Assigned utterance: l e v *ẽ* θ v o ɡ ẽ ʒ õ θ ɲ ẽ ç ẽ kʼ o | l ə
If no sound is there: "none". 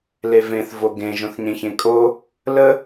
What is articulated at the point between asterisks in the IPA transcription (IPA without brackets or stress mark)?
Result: ẽ